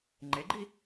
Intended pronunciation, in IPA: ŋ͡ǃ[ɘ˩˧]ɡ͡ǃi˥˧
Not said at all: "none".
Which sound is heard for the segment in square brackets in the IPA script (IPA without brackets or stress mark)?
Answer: e˩˧